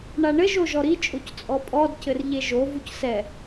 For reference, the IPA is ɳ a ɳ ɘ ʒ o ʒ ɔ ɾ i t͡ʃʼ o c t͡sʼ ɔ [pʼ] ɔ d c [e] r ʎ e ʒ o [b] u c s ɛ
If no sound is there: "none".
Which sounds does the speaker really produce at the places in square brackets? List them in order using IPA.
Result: pʼ, ɘ, v

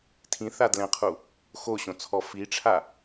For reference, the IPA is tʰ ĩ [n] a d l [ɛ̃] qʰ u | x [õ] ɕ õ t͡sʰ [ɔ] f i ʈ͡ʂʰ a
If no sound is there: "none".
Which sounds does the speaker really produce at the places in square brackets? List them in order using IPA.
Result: θ, ɛ̃, o, ɔ

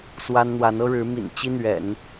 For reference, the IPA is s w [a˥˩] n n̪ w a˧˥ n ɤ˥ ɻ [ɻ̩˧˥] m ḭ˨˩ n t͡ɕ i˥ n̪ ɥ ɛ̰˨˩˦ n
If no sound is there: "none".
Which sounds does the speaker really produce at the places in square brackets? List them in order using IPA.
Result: a˥, ɻ̩˧˥

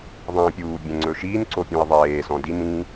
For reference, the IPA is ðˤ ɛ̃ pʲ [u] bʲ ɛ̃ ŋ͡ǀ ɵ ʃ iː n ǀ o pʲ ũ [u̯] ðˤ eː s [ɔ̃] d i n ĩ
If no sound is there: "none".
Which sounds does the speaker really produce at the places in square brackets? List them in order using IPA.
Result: uː, i̯, ɔ̃

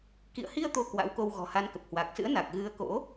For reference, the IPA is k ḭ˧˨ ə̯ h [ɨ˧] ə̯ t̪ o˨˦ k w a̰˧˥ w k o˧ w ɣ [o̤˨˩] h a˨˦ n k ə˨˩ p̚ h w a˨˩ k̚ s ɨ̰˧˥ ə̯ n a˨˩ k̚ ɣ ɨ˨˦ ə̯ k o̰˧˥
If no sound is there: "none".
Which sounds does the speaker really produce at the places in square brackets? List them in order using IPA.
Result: i˧, ɔ̤˨˩

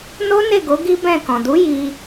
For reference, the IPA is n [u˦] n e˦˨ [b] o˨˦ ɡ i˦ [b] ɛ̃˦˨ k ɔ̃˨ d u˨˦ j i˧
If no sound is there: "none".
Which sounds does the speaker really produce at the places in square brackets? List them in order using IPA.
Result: o˦, ɡ, b

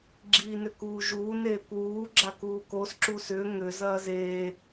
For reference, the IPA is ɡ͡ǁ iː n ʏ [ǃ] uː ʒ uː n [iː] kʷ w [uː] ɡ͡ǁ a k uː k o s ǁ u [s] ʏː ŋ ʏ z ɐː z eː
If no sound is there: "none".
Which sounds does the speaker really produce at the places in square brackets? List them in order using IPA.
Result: k, eː, uː, s

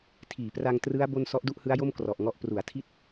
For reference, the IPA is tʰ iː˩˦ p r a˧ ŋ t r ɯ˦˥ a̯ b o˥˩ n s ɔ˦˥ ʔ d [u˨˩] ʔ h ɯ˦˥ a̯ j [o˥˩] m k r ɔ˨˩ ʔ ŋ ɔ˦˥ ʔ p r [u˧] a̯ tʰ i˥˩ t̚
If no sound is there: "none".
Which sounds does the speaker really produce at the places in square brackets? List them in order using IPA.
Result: u˥˩, o˥˩, u˩˦

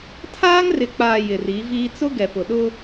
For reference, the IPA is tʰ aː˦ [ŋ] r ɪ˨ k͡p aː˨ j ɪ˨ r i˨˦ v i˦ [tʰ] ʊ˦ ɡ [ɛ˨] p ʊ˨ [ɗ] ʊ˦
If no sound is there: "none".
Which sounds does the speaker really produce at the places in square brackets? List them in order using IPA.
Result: ŋ, t͡s, ɛ˨, ɗ

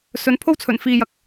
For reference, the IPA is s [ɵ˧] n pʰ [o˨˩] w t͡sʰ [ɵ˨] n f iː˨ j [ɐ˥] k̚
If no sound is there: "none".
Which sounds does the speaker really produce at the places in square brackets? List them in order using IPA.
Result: ɵ˨˧, o˥, ɵ˨˩, ɐ˨

